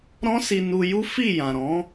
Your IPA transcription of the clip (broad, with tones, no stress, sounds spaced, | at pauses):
ɾ ɔ̃˦ s i˧ n u˧ j u˦ f i˦˨ j ã˨ ɾ ɔ̃˨˦